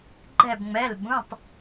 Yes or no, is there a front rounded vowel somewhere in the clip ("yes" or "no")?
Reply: no